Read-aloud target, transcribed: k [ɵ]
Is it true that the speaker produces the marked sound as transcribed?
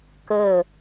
yes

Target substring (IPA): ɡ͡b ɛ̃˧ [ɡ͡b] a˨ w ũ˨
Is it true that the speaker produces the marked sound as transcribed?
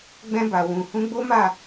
no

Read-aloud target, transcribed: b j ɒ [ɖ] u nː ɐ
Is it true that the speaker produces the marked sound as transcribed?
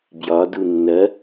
no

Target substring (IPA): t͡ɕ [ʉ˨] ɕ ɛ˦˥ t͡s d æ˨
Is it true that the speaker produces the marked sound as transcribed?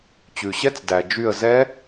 yes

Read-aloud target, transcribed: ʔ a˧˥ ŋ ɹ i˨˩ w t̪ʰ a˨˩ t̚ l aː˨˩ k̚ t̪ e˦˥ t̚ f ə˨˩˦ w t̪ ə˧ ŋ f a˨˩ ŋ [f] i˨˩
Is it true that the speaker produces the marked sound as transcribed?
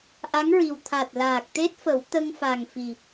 yes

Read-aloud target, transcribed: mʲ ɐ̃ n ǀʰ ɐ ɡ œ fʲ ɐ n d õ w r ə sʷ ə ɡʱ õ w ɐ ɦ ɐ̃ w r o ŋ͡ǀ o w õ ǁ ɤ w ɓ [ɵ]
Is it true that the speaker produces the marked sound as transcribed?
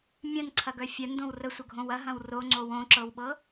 no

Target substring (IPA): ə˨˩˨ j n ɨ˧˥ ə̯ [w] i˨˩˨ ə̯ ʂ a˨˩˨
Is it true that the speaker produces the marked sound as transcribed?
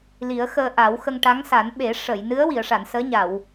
yes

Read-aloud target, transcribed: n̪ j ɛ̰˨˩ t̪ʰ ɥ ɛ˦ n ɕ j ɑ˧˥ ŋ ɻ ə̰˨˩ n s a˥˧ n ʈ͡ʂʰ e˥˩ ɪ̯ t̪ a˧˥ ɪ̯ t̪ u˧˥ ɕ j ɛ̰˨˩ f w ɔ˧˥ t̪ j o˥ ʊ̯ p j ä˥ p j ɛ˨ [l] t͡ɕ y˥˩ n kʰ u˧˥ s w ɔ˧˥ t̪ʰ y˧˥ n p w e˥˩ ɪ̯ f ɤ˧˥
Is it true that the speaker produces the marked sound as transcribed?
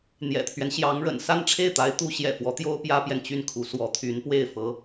no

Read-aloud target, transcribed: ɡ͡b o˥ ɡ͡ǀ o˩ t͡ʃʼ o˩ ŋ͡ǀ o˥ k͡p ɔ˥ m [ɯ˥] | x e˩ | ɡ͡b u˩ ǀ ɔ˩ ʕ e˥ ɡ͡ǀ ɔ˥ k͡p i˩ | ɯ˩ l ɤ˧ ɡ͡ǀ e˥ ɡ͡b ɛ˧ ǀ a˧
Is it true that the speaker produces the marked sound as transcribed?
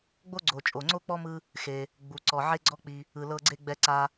no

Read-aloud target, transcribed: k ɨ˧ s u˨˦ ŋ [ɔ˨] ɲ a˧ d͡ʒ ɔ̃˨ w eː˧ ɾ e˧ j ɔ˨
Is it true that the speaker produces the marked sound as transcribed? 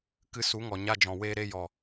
yes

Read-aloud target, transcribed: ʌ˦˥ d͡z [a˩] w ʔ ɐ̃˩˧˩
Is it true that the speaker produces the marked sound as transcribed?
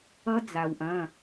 yes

